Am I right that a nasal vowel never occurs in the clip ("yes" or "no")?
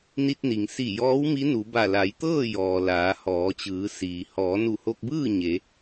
yes